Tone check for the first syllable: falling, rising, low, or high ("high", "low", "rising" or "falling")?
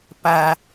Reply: low